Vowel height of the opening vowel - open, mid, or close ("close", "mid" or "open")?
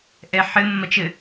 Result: mid